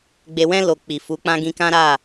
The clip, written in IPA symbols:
ɡ͡b e˨ w ɛ̃˧ l o˨ k͡p i˨ f u˨˦ k͡p ã˦ ɡ ĩ˧ k ã˦ ɾ a˦˨

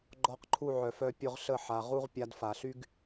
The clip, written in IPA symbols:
ɡ͡ǃ ɔ˧ q ǃʰ u˦˨ ʕ œ˨ f œ˧ pʲ ʊ˧ ʁ ɬ ə˦˨ ħ a˨ ʁ u˦ ʁ pʲ a˧ d f a˨ ɬ y˦ ɡ

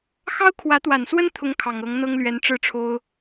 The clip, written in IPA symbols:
x ɑ˥ ʊ̯ kʰ w ä˧˥ t̪ w a˨˩ n s w ə˥ n t̪ʰ ʊ˥ ŋ kʰ ɑ˨˩ ŋ ɤ˧˥ ŋ n̪ ɤ˥ ŋ l ɥ ɛ˧˥ n ʈ͡ʂ ɻ̩˥˩ ʈ͡ʂʰ o˥ ʊ̯

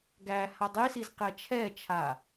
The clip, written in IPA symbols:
ɡ æ h a dˤ i s i z q ɛ t͡ʃʰ ɛ t͡ʃʰ a

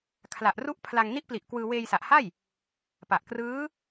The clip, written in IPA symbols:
kʰ l a˨˩ ʔ r u˦˥ ʔ pʰ l a˧ ŋ n i˦˥ ʔ p l i˨˩ ʔ k w ɯː˧ w eː˧ j s a˨˩ ʔ h a˥˩ j | p a˨˩ ʔ k r ɯː˦˥

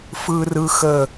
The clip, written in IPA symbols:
f ɯ˦ r ɯ˦ x ə˦˨

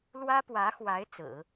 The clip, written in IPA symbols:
l w ä˥ p w ä˧˥ x w a˧˥ ɪ̯ t͡s ɹ̩˨˩˦

